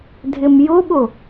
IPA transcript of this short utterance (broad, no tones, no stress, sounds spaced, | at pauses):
dʱ ɪ m j ʊ ɓ ʊ